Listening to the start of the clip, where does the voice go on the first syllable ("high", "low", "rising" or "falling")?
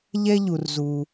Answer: high